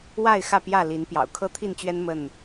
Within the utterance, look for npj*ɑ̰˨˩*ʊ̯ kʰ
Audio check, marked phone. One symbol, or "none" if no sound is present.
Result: ɑ̰˨˩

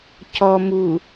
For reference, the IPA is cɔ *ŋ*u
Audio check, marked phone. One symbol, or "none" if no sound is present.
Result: m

